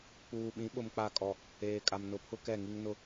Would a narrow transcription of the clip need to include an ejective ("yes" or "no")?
yes